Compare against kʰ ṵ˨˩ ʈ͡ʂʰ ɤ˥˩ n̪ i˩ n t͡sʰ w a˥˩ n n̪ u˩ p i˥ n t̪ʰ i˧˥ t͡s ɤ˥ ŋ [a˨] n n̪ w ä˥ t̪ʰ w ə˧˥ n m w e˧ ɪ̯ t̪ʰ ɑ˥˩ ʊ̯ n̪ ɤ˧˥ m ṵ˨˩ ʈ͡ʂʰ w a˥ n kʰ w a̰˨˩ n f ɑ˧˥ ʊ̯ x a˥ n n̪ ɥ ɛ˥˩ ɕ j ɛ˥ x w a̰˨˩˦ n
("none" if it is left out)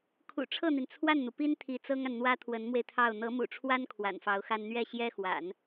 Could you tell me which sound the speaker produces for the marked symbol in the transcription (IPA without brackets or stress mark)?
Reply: a˨